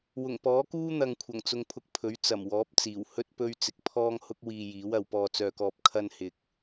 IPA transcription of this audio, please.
w ʊ˨˩ ŋ p ɔː˨˥ k uː˥ n̪ ɐ˨ ŋ kʷʰ ɐ˨˩ ŋ t͡s ʊ˧ ŋ pʰ ʊ˧ k̚ pʰ ɵ˨˥ ɥ t͡s ɐ˨˩ m w ɔː˨˥ p̚ t͡s iː˨˩ w h ɵ˥ t̚ p ɵ˥ ɥ t͡s ɪ˧ k̚ pʰ ɔː˥ ŋ h ʊ˥ k̚ w iː˧ j iː˨˥ w ɐ˨˧ w p ɔː˧ t͡s œː˧ k ɔː˧ p̚ kʰ ɐ˥ n h ɪ˧ k̚

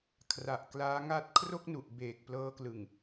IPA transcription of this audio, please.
kʰ r a˨˩ ʔ k l aː˦˥ ŋ a˦˥ t̚ kʰ r o˥˩ k̚ n u˨˩ ʔ b eː˨˩ k̚ p l ɤː˦˥ k l ɯ˨˩ ŋ

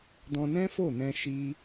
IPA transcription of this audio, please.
d ɔ̃˧ n ɛ̃˦ f o˦˨ n ɛ̃˧ ʃ i˦

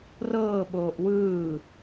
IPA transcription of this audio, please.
r ɤː ɓ oː ʔ w ɯː

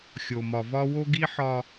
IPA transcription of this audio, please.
xʲ o˨ m ɒ˨ v ɒ˦ w o˦ ɡ i˦ ħ ɒ˦

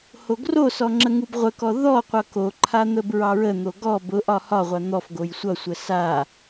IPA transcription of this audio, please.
h o ɡ r o s ɔ ŋ͡ǁ ə ŋ u b ʁʷ ə k ɔ ð ɔ qʷ ʌ k o ǃʰ a n̪ ə b ɹ ɑ ɹ ə n̪ o ɡ ɔ b ʊ ʔ ɒ h ɒ ʁʷ a n̪ ɔ f ɡ o j sʷ ʌ sʷ ə s a

